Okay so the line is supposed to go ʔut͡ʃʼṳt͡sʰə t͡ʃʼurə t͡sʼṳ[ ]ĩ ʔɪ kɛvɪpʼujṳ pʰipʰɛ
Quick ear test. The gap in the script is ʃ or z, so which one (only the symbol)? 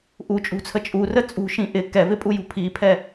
ʃ